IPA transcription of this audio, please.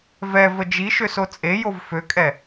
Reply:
v ɛ v ə d͡ʒ i ʃ ø s o t͡sʼ e j o v f ø kʼ ɛ

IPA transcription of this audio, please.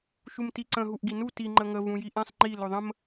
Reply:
ʃ u m t i ǀ ə̃ ɦ u ʔ ɡ i n u t i ŋ͡ǃ ə ŋ ə v ũ j i ʔ ɛ̃ sˤ ŋ͡ǃ i l ɵ ðˤ ə̃ m

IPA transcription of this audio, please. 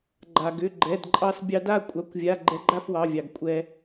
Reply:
ɡ͡ǃ a˩ ɡ ʏ˩˧˩ ɡ͡ǃ ɛ˩˧˩ d ǃʼ ɑ˧ s bʲ ɑ˧ d a˥˧ kʷʼ ɑ˩˧˩ kʷ vʲ a˩˧˩ ɡ͡ǃ ɛ˧ ɡ͡ǃ a˥˧ f w ɑ˩˧˩ vʲ ɑ˩ ɡ kʷʼ ɛ˩

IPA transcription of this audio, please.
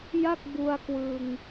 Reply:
j a˥˩ k̚ b u˧ a̯ k w ɯ˧ ŋ

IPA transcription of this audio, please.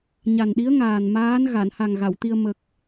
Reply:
ɲ a˨˩ n ɗ i˧˥ ə̯ ŋ aː˨˩ n m aː˧˥ n ɣ a˨˩˨ n h a˨˩ ŋ ɣ a˨˩˨ w t̪ i˧ ə̯ m ə˨˩ k̚

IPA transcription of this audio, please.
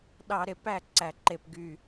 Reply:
ɗ ɑ˧˩˧ ɾ e˨˩ p æ˥˩ ǀ æ˨˩ ǃ e˨˩ p ɡ y˨˩

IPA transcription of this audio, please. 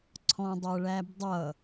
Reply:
ǀʰ ɔ̃ dˤ ʌ ɭ æ b dˤ ʌ

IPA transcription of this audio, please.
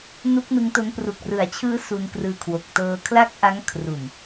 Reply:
n u˦˥ k̚ n ɯ˦˥ ŋ t o˦˥ n p r u˨˩ k̚ r ɯ˩˦ a̯ t͡ɕʰ ɯː˦˥ s u˧ n k r ɯː˧ kʰ w o˨˩ k̚ t ɤː˧ kʰ l a˥˩ k̚ ʔ a˦˥ ŋ kʰ r u˨˩ n

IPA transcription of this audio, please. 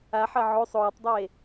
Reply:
a ħ ɐ ʕ o sˤ oː tˤ dˤ eː

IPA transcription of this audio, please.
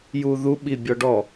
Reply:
j u ð u ɓ i bʲ ɔ ɖ ɔ

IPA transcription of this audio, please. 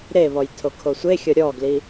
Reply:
ɾ e β ɔ j tʰ o kʰ o sʷ e xʲ ɔ ɾʲ ɔ ɡ l i

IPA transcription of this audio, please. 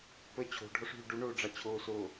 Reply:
p ə t͡ɕʰ o̤ ɖʱ ɔ ʂ ɦ y ɖ u ɳ oː ɖ͡ʐ ɑ t͡ɕʰ oː s o

